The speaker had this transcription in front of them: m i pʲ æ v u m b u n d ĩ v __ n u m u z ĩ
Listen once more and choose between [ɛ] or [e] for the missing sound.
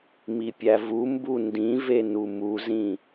e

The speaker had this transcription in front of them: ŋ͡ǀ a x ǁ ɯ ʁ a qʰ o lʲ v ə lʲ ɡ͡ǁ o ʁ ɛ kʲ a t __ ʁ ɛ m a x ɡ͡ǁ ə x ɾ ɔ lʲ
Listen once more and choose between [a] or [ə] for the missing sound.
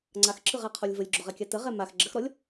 ə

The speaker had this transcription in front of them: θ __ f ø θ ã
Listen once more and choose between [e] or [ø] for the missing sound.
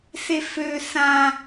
e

